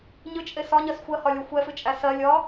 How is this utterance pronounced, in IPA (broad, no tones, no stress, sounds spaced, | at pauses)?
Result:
ɲ ɨ t͡ʃʼ e s ɒ ɲ ɜ s xʷ ɜ h ɒ lʲ ɒ xʷ ɛ f ɨ t͡ʃʼ æ s ɜ lʲ ɒ